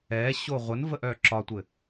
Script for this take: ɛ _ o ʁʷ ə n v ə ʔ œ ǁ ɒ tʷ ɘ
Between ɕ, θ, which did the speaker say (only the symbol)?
ɕ